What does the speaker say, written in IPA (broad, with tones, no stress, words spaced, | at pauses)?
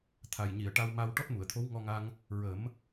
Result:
t̪ʰa˨˩jɲi˨˩˨ə̯ʈa˧wma˧w ʈɔ˦˥t̚mu˨˩˨ə̯t̪ʰo˧˥w ŋɔ˧ŋa˧ŋ | ɹə˨˩˦m